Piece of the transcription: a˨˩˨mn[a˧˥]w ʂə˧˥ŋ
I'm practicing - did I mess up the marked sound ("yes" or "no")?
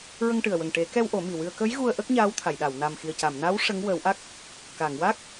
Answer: no